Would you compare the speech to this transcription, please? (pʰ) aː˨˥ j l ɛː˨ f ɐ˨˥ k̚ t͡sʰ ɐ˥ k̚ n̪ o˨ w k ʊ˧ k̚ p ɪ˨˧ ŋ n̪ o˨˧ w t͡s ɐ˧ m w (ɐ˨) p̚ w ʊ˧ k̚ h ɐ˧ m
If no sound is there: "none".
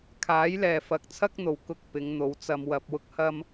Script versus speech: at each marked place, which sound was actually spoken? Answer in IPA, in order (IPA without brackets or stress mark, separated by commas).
kʰ, ɐ˨